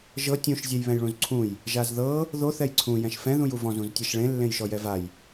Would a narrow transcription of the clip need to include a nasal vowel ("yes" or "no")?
yes